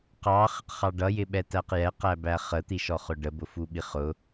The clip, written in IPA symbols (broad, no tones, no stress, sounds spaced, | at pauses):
q ɑ χ ɪ q χ ɑ ɖ ʌ j ɪ ɓ ɛ t æ q j ɛ q æ b æ χ ə t̪ i ʃ ɔ χ ʊ ɖ ə b ʊ f u ɓ i χ ʊ